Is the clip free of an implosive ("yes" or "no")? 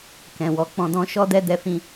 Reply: yes